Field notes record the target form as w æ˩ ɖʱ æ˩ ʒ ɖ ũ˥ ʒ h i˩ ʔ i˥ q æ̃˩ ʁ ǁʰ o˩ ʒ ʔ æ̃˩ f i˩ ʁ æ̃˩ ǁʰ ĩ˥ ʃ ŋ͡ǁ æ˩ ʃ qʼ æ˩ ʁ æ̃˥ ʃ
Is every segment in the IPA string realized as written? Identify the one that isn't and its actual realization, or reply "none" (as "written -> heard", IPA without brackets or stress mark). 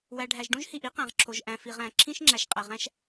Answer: none